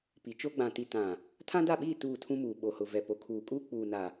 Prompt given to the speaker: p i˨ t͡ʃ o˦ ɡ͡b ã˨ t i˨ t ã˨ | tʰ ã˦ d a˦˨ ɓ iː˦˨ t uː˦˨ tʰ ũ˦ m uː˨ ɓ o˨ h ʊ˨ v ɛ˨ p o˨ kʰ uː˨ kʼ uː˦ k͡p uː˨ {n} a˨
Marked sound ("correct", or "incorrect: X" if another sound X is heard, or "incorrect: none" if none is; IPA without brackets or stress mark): correct